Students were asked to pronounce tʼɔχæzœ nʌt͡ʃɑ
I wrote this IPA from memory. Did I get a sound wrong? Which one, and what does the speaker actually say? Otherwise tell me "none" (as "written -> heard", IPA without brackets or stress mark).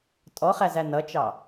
œ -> æ